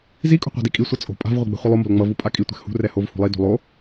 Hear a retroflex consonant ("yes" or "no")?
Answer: no